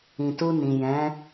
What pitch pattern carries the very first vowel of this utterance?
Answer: low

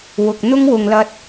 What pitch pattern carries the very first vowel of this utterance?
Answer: low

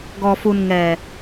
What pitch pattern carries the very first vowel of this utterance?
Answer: low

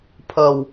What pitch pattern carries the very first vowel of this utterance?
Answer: low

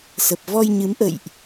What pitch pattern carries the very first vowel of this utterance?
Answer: low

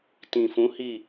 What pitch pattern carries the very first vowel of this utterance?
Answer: low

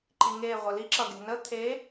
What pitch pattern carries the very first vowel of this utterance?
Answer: low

